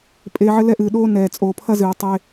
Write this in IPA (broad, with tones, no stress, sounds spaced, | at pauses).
pʼ eː˧ ʕ ɘ˦ l ɛ˦ ʔ ɨː˨ ɗ oː˦ n ɛː˨ t͡sʼ oː˨ pʰ ɐ˦ z ɨː˨ tˤ e˧